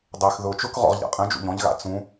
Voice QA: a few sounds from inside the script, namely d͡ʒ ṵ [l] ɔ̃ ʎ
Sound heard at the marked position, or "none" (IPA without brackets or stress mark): ʎ